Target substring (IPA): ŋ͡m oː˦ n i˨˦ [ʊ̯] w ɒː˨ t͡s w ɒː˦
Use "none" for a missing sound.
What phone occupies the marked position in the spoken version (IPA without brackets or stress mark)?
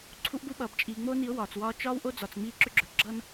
ʊ̯